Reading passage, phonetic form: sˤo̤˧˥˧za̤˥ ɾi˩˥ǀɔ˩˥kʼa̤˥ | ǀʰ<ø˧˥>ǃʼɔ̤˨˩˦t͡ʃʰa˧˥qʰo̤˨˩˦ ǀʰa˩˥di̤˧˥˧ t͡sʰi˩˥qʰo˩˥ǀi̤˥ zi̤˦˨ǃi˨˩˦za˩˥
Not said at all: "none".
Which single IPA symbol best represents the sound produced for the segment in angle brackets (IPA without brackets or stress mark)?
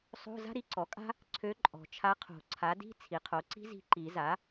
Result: ø˧˥